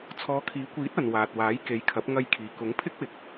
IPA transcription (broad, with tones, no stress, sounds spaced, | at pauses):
t͡sʰ ɔː˨˧ kʰ iː˨˥ kʷ iː˨˥ t̚ ɐ˨ n w aː˨ t̚ w aː˨˥ j k e˨˧ j kʰ ɐ˨˥ p̚ ŋ ɐ˧ j kʰ iː˨ k ʊ˨˥ ŋ pʰ ɪ˥ k̚ w ɪ˨˥ k̚